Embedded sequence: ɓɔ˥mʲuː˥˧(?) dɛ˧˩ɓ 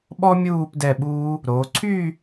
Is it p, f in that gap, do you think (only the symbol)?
p